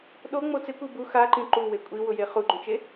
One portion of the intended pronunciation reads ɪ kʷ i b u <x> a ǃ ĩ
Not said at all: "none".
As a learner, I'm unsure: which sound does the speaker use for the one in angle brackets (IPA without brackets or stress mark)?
x